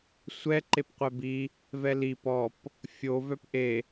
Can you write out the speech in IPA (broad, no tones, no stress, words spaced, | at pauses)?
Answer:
sʷɛ ǃepqʷɛbi | vɛli pɔp | fʲo vœpʔe